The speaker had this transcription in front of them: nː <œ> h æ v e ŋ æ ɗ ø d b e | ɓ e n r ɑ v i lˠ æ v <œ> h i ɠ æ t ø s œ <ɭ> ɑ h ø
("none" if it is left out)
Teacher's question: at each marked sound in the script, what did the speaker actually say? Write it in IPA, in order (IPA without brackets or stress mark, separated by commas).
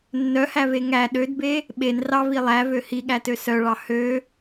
œ, ø, ɭ